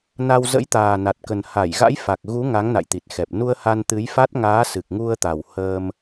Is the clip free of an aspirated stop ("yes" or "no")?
yes